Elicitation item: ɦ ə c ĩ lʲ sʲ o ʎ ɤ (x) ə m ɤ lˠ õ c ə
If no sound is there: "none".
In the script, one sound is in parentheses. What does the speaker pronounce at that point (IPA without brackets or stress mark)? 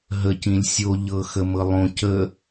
x